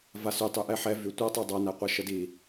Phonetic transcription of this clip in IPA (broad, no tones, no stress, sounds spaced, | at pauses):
v a s y tˤ y ʔ ɛ ħ ɛ v y tʷ a tˤ y dˤ a n æ qʷ ɜ ʃ ə d i